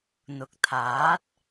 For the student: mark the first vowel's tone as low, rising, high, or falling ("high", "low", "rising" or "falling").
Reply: low